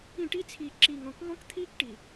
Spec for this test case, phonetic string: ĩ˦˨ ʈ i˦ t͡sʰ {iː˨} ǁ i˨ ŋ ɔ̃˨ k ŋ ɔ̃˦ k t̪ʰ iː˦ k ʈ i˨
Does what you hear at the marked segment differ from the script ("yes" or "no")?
no